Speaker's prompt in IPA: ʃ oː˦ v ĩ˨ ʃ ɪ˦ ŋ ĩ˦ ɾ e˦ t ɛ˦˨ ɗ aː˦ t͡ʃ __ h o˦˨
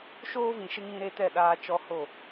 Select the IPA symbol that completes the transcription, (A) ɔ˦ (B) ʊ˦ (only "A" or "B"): A